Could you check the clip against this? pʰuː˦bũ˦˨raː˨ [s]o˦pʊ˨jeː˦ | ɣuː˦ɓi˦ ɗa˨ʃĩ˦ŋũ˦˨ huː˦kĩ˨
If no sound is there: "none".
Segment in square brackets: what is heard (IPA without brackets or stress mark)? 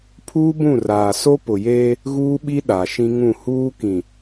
s